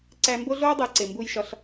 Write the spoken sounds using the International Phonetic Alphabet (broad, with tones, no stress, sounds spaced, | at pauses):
ǀ æ˧ m b o˦ ɮ oː˦ dˤ e˨˦ ǀ e˨ m b u˧ j ʃ ɒ˧ ɬ